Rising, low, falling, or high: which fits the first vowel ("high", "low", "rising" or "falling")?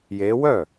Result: rising